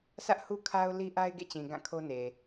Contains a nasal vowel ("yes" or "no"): yes